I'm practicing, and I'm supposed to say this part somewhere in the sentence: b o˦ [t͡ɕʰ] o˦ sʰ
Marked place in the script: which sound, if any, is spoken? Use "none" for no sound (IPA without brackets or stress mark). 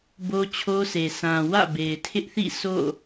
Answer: t͡ɕʰ